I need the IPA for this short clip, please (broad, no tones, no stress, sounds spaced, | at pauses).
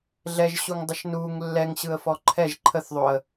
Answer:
ɮ ɛ ʒ ɕ u ŋ dˤ ə ʃ n u ŋ lː ɛ ŋ ɕ ɯ ə̯ f ɔ ǃʰ ɛ ʒ ǃʰ ə θ ðˤ o ə̯